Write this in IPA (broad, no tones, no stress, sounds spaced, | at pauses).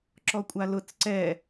ǁ ɔ kʷʼ a l ʊ t͡s ǀ ɛ